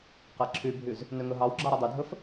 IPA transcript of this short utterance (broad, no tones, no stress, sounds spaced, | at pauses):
q æ ǁʰ y bʱ y z | n ø ŋ ɵ ɦ ɑ w ɡ͡ǁ ɑ ɾ ɵ dˤ y dʱ ɵ f